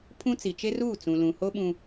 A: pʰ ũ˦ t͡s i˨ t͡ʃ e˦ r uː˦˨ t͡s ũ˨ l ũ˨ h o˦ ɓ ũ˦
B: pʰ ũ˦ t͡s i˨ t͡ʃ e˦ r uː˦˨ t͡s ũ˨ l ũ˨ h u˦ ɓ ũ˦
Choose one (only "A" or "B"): A